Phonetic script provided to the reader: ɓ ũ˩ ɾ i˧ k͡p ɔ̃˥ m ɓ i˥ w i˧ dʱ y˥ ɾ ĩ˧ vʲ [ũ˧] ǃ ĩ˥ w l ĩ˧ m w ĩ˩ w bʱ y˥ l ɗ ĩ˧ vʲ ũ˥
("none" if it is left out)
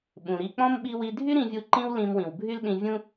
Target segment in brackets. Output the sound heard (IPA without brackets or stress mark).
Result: u˧